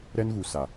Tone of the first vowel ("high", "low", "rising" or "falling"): high